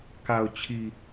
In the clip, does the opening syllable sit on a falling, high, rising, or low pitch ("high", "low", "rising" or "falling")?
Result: low